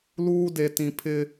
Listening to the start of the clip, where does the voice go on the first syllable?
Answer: high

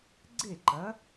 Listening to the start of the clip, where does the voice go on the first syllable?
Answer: falling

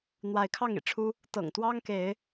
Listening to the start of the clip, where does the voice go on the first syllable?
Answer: rising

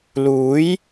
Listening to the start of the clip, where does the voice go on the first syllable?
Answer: rising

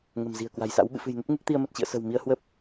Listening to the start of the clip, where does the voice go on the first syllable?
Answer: low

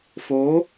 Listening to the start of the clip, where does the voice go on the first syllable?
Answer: rising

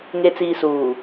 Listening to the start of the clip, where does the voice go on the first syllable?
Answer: low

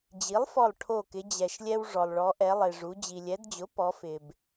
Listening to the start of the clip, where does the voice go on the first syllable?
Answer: rising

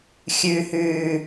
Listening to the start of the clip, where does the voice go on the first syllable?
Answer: low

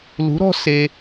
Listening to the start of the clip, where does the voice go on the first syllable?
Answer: rising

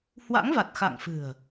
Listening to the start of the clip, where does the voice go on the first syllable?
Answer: rising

